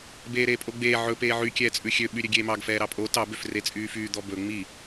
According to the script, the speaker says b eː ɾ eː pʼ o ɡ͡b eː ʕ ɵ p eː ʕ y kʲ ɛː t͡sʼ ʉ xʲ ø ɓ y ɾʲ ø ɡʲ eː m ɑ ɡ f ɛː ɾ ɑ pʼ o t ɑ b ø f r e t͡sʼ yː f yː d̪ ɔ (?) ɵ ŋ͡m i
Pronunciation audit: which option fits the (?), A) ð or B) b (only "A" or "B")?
B